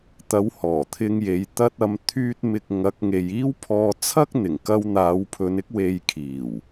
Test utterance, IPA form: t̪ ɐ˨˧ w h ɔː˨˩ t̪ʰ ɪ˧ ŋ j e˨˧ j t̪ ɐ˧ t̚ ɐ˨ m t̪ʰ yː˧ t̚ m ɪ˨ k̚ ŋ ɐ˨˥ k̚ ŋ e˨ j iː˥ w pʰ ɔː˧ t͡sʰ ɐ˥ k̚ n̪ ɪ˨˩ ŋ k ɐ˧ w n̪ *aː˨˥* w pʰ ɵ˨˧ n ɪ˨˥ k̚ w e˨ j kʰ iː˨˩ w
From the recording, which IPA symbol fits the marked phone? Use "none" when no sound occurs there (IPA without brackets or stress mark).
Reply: aː˨˧